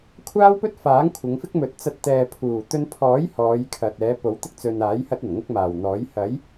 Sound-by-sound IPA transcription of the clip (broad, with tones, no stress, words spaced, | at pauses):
kʷʰaː˥wpɵ˥t̚faː˨˥ŋ kʷʰɪ˨˧ŋfɪ˥k̚mɵ˨˥t̚ t͡sɐ˧t̚ t̪ɛː˨pʰuː˨˩t̪ɵ˧n pʰɔː˨˥j hɔː˨˧jkʰɐ˨t̚ɛː˨˧ po˨˥wt̪ɪ˥k̚ t͡sɵ˨naː˨˥j hɐ˥t̚ɐ˨˩nŋʊ˥k̚ maː˨˩wn̪ɔː˨˥j hɐ˨˥j